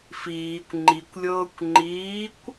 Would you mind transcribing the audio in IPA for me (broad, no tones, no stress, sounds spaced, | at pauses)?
f iː kʷ ŋ͡ǃ i kʷ lʲ ɤː kʷ ŋ͡ǃ iː kʷ